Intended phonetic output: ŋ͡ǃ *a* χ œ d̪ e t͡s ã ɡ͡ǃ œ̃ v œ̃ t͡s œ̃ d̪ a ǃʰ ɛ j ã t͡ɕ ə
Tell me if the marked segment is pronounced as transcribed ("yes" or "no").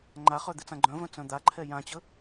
yes